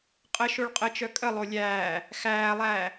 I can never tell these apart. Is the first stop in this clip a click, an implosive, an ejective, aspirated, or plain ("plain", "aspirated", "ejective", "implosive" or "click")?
ejective